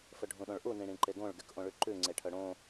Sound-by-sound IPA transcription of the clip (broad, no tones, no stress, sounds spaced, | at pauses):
f ɵ ɖʱ ũ ɗ õ ɭ ʔ u n ĩ ɽ ĩ ǃ e ɡ õ ɭ ɡ y k ʔ õ ɭ ʉ ǃ ʉ ŋ͡ǀ e ʈʰ œ ɽ õ